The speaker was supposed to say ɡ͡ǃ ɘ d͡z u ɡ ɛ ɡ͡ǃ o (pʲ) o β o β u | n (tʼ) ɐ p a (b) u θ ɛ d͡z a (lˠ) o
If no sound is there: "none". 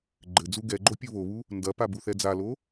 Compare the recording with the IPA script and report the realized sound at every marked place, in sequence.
pʲ, d, b, l

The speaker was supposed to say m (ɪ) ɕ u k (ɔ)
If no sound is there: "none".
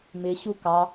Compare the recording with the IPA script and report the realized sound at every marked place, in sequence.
ɪ, ɑ

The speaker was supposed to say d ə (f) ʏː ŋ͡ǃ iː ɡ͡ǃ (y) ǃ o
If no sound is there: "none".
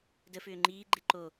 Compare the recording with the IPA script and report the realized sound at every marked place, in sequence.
f, e

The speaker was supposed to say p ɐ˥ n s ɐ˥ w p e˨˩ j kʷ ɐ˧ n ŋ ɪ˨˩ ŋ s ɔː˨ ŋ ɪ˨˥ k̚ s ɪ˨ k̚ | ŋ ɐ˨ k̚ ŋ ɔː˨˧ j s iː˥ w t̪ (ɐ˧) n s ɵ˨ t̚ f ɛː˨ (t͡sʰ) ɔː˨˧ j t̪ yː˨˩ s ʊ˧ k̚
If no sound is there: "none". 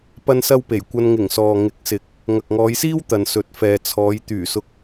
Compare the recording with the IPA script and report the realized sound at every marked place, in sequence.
ɐ˨, t͡sʰ

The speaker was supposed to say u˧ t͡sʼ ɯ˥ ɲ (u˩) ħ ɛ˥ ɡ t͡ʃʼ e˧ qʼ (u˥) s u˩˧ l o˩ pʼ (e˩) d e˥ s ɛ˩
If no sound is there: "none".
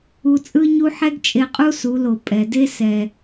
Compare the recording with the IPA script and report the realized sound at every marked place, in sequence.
u˥, u˥, ɛ˩

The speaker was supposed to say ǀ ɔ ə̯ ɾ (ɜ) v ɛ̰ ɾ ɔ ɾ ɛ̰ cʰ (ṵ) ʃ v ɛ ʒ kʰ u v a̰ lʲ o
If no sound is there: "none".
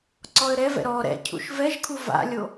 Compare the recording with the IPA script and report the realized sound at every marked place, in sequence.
ɛ, ṵ

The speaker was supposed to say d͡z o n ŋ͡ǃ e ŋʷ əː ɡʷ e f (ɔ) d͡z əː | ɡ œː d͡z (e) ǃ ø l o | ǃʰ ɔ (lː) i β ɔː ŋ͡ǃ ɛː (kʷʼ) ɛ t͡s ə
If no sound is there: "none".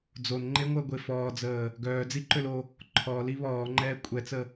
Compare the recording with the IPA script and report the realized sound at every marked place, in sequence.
ɔː, i, l, kʷʼ

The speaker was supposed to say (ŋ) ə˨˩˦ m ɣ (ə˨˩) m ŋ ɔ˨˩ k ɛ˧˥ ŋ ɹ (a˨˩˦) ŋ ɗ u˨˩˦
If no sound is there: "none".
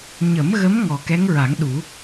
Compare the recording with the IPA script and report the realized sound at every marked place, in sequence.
ɲ, ə˧˥, a˨˩˦

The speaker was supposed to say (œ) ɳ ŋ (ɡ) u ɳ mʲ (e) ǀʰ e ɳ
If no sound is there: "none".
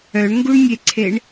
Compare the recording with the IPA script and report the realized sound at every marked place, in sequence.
œ, ɡ, e

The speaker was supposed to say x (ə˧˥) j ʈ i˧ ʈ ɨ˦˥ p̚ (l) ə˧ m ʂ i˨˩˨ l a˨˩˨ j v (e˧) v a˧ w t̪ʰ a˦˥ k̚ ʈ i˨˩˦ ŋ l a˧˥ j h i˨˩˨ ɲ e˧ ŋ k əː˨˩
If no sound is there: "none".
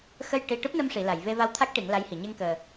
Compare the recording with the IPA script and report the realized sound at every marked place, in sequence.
ə˧, n, e˧

